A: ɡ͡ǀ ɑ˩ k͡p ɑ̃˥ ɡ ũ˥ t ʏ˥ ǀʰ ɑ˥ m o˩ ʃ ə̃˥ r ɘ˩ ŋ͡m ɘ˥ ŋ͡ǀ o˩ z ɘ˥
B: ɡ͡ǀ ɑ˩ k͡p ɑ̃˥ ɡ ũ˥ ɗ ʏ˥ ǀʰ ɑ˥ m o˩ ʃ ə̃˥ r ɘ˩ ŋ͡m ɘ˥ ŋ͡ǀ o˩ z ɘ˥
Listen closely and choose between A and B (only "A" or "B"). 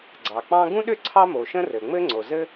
B